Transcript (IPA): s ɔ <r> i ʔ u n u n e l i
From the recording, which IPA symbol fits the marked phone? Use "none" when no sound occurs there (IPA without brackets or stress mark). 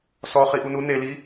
χ